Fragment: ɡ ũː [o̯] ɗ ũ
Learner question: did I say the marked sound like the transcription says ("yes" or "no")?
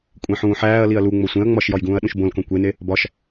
no